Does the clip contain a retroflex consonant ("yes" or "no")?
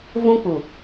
no